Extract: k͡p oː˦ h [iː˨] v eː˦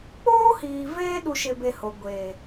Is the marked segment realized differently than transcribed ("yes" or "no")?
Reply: no